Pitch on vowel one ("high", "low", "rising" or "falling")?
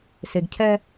low